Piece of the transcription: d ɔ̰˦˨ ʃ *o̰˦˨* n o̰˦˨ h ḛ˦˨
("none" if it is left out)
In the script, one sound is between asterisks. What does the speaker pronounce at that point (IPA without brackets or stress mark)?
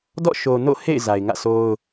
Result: o˨